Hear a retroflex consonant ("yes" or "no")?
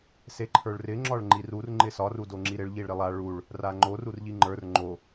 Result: yes